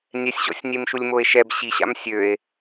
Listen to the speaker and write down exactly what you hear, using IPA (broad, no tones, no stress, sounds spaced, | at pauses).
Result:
nʲ ɛ sʲ ɕ ɔ̰ sʲ nʲ e m ʃ u lʲ m o e̯ ʃ ɛ b ɕ i ɕ a̰ m sʲ ø e̯